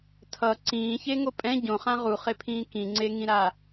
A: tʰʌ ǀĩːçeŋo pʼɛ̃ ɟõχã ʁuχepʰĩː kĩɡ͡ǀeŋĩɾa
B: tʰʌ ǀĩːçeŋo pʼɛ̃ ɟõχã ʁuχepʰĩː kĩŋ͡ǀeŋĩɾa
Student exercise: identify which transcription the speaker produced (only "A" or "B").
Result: B